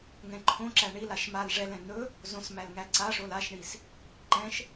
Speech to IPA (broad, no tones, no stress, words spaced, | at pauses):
ŋɛ̃ǃʰõǁæ ɳilaʃ mal ʐɛlɛ̃ n̪ɵ | zõsmæl ŋæǀaʂol aʃɳis | ǃɛ̃ʃ